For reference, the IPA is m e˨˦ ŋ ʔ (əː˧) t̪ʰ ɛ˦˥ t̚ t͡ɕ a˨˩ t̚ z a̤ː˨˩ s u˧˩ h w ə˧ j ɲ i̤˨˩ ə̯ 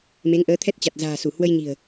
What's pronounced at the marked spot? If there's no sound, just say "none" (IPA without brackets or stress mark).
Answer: əː˨˦